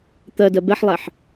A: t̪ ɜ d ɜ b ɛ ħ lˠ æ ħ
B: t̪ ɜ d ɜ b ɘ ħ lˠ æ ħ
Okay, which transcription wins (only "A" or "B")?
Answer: A